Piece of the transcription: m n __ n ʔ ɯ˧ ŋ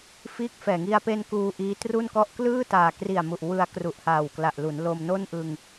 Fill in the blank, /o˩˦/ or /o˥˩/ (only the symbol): o˥˩